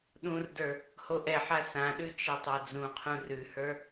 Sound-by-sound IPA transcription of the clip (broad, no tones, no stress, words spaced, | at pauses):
ɗũrdə˞ | hoʔɛħa sãɗʉ t͡ʃɛtˤad͡zũqʰũ rʉhə˞